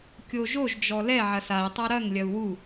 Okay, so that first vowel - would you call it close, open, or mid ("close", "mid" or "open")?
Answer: mid